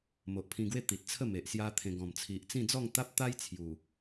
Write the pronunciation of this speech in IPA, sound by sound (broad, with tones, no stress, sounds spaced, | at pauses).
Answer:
m o˨ ʔ pʰ ĩ˧ ɡ w e˥˧ t̪ i˨ t̚ t͡sʰ ə˥˧ m e˨ ʔ s j a˦ t̪ʰ ẽ˧ ɡ ɔ̃˨˩ m t͡sʰ i˨ ʔ t͡s ĩ˥˧ d͡z ɔ˥˧ ŋ t̪ a˦ p̚ t̪ a˦ j t͡sʰ j u˨˩